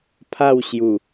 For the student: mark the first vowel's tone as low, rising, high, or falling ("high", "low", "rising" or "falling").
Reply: falling